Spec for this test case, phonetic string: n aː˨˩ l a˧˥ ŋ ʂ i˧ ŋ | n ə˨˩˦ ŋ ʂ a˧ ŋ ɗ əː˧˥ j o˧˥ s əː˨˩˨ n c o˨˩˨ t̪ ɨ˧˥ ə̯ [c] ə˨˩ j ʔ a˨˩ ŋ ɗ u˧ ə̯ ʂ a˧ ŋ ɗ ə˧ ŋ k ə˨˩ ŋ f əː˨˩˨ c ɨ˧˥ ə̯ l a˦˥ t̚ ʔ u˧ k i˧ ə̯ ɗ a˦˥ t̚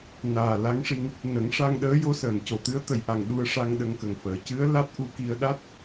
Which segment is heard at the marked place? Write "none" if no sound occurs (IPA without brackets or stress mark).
t̪